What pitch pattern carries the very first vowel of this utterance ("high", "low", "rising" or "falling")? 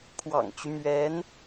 low